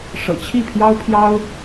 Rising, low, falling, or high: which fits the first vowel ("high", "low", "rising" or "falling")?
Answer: low